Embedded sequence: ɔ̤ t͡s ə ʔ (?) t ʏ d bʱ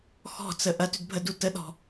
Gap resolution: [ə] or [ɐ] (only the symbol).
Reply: ɐ